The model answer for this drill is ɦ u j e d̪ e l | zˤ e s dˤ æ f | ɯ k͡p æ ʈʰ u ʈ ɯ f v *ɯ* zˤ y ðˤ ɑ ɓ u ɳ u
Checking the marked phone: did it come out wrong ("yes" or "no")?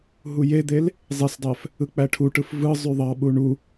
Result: no